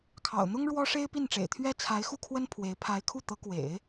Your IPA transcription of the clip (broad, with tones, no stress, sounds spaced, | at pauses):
kʰ ɑ̰˨˩ ʊ̯ n̪ ʊ˥ ŋ ɻ w ɔ˥ ʂ e˥ ɪ̯ p i˥˩ n ʈ͡ʂ ḛ˨˩ ɪ̯ t̪ʰ ɥ ɛ˥ t͡sʰ a˧˥ ɪ̯ x u˥˩ kʰ w ə˥ n pʰ w e˧˥ ɪ̯ pʰ a˧˥ ɪ̯ kʰ u˥˩ t̪ ɤ˧˥ k w ḛ˨˩˦ ɪ̯